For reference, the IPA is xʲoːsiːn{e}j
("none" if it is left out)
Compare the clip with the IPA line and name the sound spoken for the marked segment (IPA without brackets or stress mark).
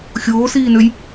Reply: ø